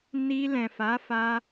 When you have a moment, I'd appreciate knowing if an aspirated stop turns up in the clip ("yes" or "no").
no